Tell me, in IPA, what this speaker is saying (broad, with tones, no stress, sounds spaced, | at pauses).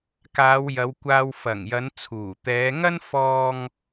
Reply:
k aː˨˧ w j ɐ˨˧ w kʷ aː˧ w f ɐ˨˩ ŋ j ɐ˨˧ n t͡sʰ uː˨˩ t̪ ɛː˨˧ ŋ ɐ˥ n f ɔː˧ ŋ